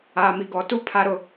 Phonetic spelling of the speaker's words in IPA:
aː˨ m i˨ ɡ ɔ˨ t u˦ pʰ a˦ ɾ ʊ˨

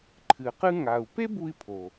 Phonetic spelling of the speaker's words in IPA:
ǃʰ ɨ˩ q ɨ˧ ŋ a˩ u̯ p e˥ b u˧ i̯ pʰ o˩

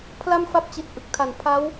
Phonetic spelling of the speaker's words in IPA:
pʰ l a˥˩ m f a˦˥ p̚ t͡ɕ i˨˩ t̚ ʔ ɯ˨˩ k̚ tʰ a˨˩ n pʰ a˦˥ w

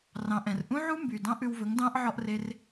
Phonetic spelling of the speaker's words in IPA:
r ɑ̃˨ ʔ ɛ̃˨ r ʔ ũ˦ ʕ u˦ m b y˨ d ɑ̃˦ ʔ ʉ˧ w v ɵ˨˦ ŋ d ɑ̃˦ ʔ ʕ ɔ˦ ʔ r e˦ r

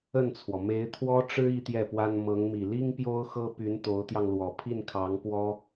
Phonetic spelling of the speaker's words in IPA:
ə˥˩ n t͡sʰ w ɔ˩ m e˧˥ ɪ̯ t̪ʰ w ɔ˥ ʈ͡ʂ ɻ̩˥ i˥ t̪ j ɛ˥˩ p w a˥ n m ɤ˧˥ ŋ m i˨˩ l i˥ ŋ p j o˥ ʊ̯ x ɤ˥ p y˧˥ n t̪ o˧˥ ʊ̯ t̪ j ɑ˧ ŋ l w ɔ˨˩ pʰ i˥˩ n kʰ ɑ˧˥ ŋ p w ɔ˥

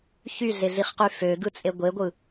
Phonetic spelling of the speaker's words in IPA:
ç y ɮ e ɮ i χ q y f ø ɡ ɯ t͡sʼ e ɡʷ e ɡʷ ɯ

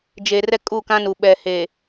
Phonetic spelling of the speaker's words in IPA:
d͡ʒ e˨ r ɛ˦ kʼ u˦˨ k ã˦ n u˨ ɓ ɛ˨ h e˨

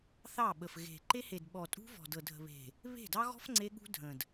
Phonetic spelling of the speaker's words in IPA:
θ ɑ˦˨ ɓ ə˨ f ɣ e̤˨ ǃ e˦ h e˨ d ɓ ɔ˨ tʼ ṳ˦ v ɔ̤˨ d ɤ˨ dʱ ə̤˨ β e̤˨ | β e̤˦˨ d ɑ˦ ɣ ɔ̤˦ f ŋ͡ǀ e˦ ɠ ṳ˦ dʱ ə̃˨ d

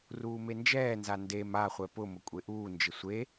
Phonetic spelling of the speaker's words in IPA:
r uː m e n d͡ʒ ɛː n z a n d e m a χʷ ɛ p ʊ m ʊ kʷʼ e ʔ uː n d͡ʒ ɪ sʷ e

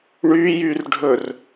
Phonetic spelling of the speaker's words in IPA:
ɳ y j y r ɖʱ ɵ r

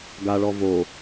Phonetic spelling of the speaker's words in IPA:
ɡ a ɭ ɔ v o

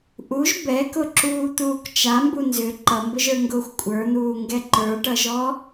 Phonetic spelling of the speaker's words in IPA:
ʔ u ʒ b ɛ k ʊ ǁ uː t̪ uː k t͡ʃ a m b u n z ʏ ǃ ʌ m b ʊ ʒ ə˞ ŋ ɡ ʊː xʷ kʷʼ ə˞ n̪ uː ŋ ɡ ɛ ǃ ə˞ ʈ ʌ ʒ ɔ

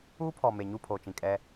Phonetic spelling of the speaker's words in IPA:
uː˦ pʰ ɔ˨ m e˨ ɲ u˦˨ pʰ oː˨ t͡ʃ ĩ˨ kʼ ɛ˦

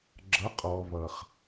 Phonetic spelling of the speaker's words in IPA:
ɡ͡ǁ ʌ˨˦ qʼ ɔ˨ β ʌ˨ χ

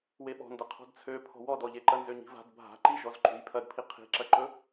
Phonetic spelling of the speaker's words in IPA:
w e ɓ ɔ̤ n d ɐ qʰ ɔ̤ d t͡sʰ ø pʰ ɔ̤ w ɔ d ɔ ʎ e ǃ ɐ n z ø ɲ i̤ v a̤ d bʱ a̤ ǃ i ʒ ɔ z ǃ ṳ j pʰ ɐ d pʰ i qʰ i̤ ǁ ɐ ǃ ɵ

